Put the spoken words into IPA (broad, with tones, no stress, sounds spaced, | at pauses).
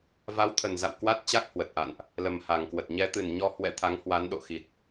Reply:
v a˨˦ w t̪ʰ ə˨˩ n z a̰˧˨ w k w a˦˥ t̚ t͡ɕ a˦˥ k̚ h w ə˨˩ t̚ ʔ a̰˧˨ n ʔ | l ə˨˩ m h a˨˩ ŋ k w ə˨˩ t̚ ɲ ɛ˨˦ t̪ ɨ˨˩ n ɲ ɔ˧ h w ɛ̰˧˥ t̪ʰ a˨˦ ŋ h w a˨˦ n ɗ o̰˧˨ x i˨˩ t̚